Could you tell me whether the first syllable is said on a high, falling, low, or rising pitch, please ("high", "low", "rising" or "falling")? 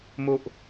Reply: low